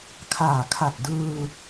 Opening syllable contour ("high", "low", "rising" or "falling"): low